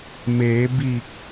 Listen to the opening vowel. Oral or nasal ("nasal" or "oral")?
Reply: oral